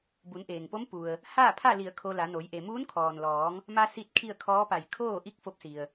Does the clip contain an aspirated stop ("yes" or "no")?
yes